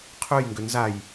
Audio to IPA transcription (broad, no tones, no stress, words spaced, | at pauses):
qʰœjŋɡʏ nzaj